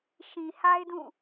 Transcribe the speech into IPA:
ʃ ĩ˨ h a˦ ɪ̯ d ũ˦˨

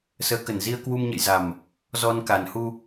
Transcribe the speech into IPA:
s əː˨˦ k ə˨˩ n z i˧ ə̯ k w u˧ m ɲ ə̰˧˨ j z a˨˩ m | z ɔ˧ n k a˨˩ n h u˧

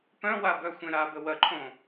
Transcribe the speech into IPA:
p œ̃ w a b œ xʷ ẽ ɾ a b ə w ɐ ǃʰ õ

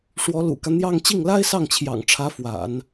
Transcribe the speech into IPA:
ʂ w ɔ˧˥ l ṵ˨˩ k ä˦ n̪ j ɑ˥˧ ŋ t͡ɕ i˥˩ ŋ l a˥ ɪ̯ s ɑ˥˩ ŋ t͡ɕʰ j ɑ̰˨˩ ŋ ʈ͡ʂʰ ä˧˥ f w a̰˨˩˦ n

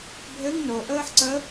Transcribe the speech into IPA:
bʱ ɘ ŋ n o ʔ əː ħ ǀ ə

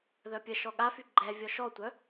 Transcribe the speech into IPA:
ð œ pʲ ə ʃ ɔ ɠ a f y ɡ͡ǃ ɛ vʲ ɔ ʃ ɔ tʷ œ

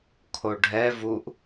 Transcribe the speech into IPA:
kʰ o ɖʱ ɛ v u ʔ

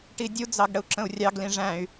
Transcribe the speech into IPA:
ʈ i dʲ u d͡z ɑ ɡ ɽ ə u̯ ǁ ə̃ u̯ rʲ ɑ ɡ l ĩ ʐ æ̃ y̯

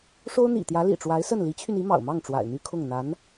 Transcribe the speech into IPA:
ʂ o˥ ʊ̯ n̪ ḭ˨˩ t̪ j ä˧˥ l ḭ˨˩ ʈ͡ʂ w a˧˥ ɪ̯ s ə˥˩ n l i˧˥ t͡ɕʰ y˧ n i˧˥ m ɑ̰˨˩ ʊ̯ m ɑ˥˩ ŋ ʈ͡ʂ w a̰˨˩ ɪ̯ n̪ y˥ kʰ ʊ˥˩ ŋ n̪ a˧˥ n

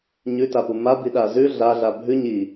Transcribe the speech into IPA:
ɲ ʉ t a p u m a b i ɗ a z ʉ ɮ a ɮ a bʱ ʉ ɲ i

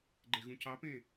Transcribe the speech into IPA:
ɡ͡ǃ e ɣ ũ c ɑ p ẽː

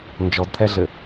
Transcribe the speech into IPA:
n d͡ʒ ɔ d t̪ʰ ɛ ɮ ɘ

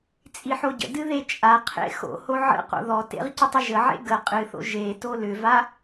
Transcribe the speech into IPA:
t͡sʼ i ħ o ɟ ə̰ d ɨ ð e t͡ʃʼ a qʰ ḛ x o̰ h o ʕ ə̰ q o̰ ð ɔ t ḛ ʁ c ə tˤ ə ʒ ə ʕ ḛ ɡ ə qʼ ɨ θ o̰ ʒ e t o l ʏ v a

